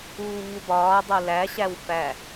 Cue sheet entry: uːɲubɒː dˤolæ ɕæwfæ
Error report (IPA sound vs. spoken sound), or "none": none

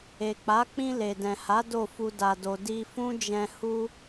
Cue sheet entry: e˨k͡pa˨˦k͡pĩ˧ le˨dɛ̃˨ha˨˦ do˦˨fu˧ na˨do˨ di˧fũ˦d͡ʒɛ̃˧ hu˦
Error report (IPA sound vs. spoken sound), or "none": n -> d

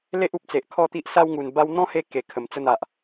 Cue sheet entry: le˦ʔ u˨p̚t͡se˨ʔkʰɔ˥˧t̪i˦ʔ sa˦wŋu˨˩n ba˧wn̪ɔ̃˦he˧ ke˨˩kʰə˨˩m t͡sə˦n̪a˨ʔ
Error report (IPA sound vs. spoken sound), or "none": none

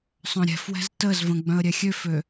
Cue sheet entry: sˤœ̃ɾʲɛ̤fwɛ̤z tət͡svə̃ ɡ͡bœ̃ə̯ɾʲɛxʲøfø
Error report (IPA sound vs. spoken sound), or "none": t͡s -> z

